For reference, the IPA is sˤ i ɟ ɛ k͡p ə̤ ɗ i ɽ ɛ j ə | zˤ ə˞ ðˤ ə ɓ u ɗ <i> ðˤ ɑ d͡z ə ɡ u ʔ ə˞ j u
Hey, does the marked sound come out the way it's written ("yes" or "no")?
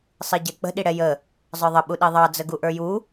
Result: yes